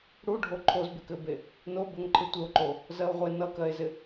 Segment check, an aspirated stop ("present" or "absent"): present